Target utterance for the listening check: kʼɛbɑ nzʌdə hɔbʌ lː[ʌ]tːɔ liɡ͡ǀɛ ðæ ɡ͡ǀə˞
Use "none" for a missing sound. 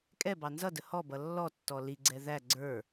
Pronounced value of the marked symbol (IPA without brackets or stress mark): ɔ